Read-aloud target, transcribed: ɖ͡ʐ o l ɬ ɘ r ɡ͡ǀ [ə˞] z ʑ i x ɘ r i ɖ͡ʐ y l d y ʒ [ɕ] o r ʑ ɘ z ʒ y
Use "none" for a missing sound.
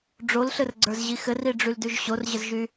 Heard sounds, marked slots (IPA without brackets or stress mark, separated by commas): ə˞, ɕ